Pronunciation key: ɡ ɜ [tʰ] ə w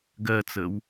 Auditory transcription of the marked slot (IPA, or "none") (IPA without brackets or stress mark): t͡s